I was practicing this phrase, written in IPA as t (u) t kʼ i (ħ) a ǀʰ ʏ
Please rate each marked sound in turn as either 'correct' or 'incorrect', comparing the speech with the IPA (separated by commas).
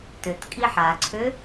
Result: incorrect, correct